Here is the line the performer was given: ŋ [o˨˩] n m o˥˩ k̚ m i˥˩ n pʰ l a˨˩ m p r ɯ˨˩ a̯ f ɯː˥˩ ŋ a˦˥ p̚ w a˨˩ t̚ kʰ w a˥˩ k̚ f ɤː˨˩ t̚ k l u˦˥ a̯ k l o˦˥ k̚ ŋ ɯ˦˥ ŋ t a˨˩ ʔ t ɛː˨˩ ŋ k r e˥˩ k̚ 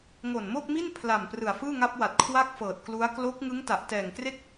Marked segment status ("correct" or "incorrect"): correct